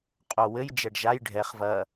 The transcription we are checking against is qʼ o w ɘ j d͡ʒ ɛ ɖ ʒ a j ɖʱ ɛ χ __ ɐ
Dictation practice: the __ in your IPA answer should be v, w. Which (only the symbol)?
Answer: v